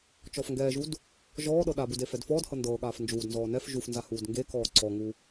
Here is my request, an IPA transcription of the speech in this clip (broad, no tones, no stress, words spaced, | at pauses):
t͡ʃɔfŋɡɛːʒud | ʒɔːɗɤ ɗabud efɛdfɔːdhɤ ndɤːɠaːf nd͡ʒuːdnzɔː nɛf ʒufnza huːdŋɡekɔː ǀɔŋu